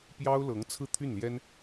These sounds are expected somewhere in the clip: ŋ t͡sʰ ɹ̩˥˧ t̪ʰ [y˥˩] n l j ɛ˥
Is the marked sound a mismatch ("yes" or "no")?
no